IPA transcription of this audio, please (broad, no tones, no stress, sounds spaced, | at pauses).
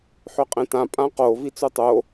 ħ ø qʼ ẽ t ã pʼ ã q o v i t͡s u tˤ o